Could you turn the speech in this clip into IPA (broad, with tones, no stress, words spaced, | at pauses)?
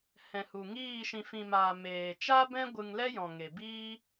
hɛ̃˨hu˨ŋiː˦˨ ʃĩ˨fĩ˨maː˨ meː˨ t͡ʃa˦bɛ̃˦ ɡʷɨ˧ŋlɛ˦jɔ̃˨ŋe˨ biː˦